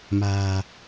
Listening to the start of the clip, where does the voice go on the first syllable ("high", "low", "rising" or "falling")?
low